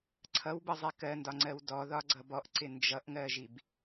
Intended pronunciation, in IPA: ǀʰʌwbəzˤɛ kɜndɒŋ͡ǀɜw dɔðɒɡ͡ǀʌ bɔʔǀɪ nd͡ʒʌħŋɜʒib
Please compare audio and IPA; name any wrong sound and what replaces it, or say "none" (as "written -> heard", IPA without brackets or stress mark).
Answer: ħ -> ʔ